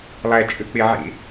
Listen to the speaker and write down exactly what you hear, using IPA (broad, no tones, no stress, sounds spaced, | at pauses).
lˠ æ t͡ʃʼ ø k͡p e ʕ ḛ